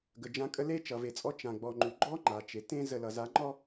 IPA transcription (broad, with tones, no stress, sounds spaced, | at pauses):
ɡ ə˨ d͡ʒ ã˦ kʼ ə˦ l e˦ t͡ʃ ʌ˨ v e˨ t͡sʼ ɔ˦ t͡ʃ ã˨ ɡ͡b ɔ˨ ŋ͡ǃ ʉ˨ ɡ͡ǃ ɔ˦ ŋ͡ǃ a˨ t͡ʃ e˨ t ẽ˦ z ə˨ l ʌ˨ z a˨˦ ŋ͡ǃ ɔ˦